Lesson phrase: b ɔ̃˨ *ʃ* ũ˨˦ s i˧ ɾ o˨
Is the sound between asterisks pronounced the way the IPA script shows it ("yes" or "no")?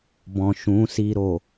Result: yes